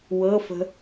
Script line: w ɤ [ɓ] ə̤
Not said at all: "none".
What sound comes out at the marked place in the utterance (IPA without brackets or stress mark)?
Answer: f